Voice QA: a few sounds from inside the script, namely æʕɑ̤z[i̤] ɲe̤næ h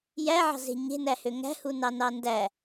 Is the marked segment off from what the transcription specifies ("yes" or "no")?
yes